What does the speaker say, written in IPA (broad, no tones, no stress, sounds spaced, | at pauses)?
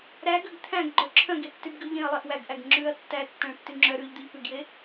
ɾ æ ɡ ø ɡ t̪ʰ æ̃ ɡ ɡ͡ǃ œ ǁʰ œ̃ ɡ e tː y b ɡ ʉ ʎ ẽ ɐ̯ lˠ e ʔ w æ ɡ ʔ æ ɡ ŋ͡ǁ ʉː ɐ̯ tː æ tː æ̃ ɭ tː y ŋ͡ǁ œ ɾ ʉː ʎ d̪ ʉ ʎ p ʉ ɡ j e